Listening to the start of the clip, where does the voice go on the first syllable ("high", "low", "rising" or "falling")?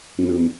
low